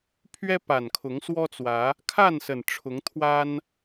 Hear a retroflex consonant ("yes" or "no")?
yes